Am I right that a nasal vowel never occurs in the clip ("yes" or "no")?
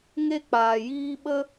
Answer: yes